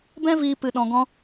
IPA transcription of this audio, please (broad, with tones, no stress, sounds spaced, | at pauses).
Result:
b ɛ̃˦ v iː˧ p ɨ˧ ɗ ɔ̃˧ ɡ ɔ̃˦